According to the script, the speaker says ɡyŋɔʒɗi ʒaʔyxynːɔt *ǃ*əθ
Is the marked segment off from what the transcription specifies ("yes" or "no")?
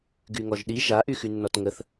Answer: yes